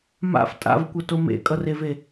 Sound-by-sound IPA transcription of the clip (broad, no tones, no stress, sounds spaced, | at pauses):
m a̰ f tʼ a̰ v kʷ ʌ t o m ḛ kʼ ʌ r e v e